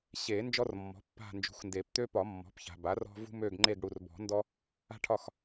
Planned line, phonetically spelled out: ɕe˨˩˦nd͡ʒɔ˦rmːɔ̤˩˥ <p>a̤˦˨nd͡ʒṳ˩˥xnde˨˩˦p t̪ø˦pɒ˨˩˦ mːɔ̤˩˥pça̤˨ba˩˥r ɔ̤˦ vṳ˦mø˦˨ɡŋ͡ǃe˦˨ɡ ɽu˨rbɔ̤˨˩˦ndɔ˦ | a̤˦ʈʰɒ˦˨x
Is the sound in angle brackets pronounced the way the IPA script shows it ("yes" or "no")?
no